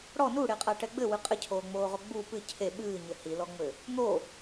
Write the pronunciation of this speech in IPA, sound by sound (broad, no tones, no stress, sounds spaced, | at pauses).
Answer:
ɽ ɔ n u ɽ e qʼ a ʈ ɛ ɡ͡b ɘ w ɨ qʼ ɘ cʰ oː ŋ͡m oː ʁ o ɡ͡b u p ɨ cʰ e ɓ ɨː ɲ ɘ h i l ɔ ŋ͡m ɘ | n̪ o